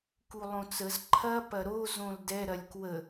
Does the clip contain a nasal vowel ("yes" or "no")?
yes